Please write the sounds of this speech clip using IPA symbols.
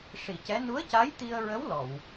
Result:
ʂ i˨˩˨ c ɛ˧˥ n u˧˥ ə̯ c a˧˥ j t̪ i˧ ə̯ ɹ ə˧˥ w l ɔ˨˩˨ w

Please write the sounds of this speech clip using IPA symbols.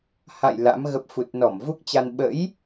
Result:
h a̰˧˨ j l a̰˧˥ m ɣ ə˦˥ p̚ f u˨˩ t̚ n ɔ˧˩ m v u˦˥ k̚ t͡ɕ a˧ n ɓ ə̰˧˥ j

